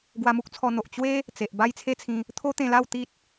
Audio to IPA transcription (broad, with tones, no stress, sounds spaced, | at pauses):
ɡ w a˧ m u˦ k̚ t͡sʰ ɔ˧ n̪ o˨ ʔ t͡ɕ w e˦ | t͡s e˨ ʔ b a˦ j t͡sʰ e˦ t͡sʰ ĩ˧ | t̪ʰ o˦ t̪ ẽ˧ l a˥˧ w t̪ i˦ t̚